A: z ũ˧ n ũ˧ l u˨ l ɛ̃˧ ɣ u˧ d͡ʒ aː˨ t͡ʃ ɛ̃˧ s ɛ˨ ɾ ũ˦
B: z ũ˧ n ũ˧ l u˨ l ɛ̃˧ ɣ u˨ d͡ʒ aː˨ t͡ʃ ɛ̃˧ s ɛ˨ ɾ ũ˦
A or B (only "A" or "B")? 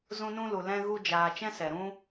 A